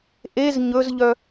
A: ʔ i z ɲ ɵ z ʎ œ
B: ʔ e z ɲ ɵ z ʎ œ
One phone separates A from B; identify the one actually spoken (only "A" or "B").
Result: B